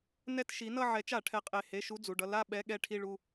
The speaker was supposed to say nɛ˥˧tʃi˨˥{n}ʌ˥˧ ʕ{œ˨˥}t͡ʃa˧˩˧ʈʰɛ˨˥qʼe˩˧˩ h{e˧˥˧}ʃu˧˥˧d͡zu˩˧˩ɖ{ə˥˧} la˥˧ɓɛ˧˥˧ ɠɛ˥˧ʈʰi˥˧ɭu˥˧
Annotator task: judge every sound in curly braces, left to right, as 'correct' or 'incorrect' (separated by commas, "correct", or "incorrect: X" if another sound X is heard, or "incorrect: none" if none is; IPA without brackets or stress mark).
correct, incorrect: ɛ˨˥, correct, incorrect: ʌ˥˧